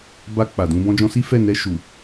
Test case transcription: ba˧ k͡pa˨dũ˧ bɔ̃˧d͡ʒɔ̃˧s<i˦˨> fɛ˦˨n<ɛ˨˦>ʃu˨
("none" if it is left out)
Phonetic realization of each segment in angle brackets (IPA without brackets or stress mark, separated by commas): i˦, ɛ˧